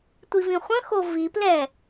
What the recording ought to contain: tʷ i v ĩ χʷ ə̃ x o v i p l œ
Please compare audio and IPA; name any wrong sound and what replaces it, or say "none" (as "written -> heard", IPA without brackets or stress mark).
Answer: œ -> ɛ